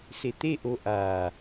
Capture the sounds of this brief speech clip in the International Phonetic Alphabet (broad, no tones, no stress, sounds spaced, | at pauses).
s e t̪ e ʔ o ʔ aː